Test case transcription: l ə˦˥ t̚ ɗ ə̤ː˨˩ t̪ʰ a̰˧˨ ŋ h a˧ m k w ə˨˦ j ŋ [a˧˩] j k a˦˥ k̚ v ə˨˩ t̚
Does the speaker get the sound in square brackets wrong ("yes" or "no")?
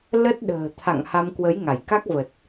no